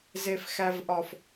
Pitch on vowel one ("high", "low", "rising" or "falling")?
low